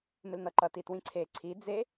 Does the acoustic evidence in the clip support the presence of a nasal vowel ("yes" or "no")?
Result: yes